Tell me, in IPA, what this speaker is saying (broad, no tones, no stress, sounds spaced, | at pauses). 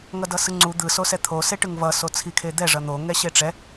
ŋ ʌ d ʌ s ɯ ŋ͡ǀ u d̪ ɯ s o s ɛ t̪ʰ o s e ʈ ɯ ŋ v ʌ s o t͡sʰ i kʰ e d̪ ɛ ʐ ʌ n̪ o ŋ ɛ ɕ e ʈ͡ʂ ɛ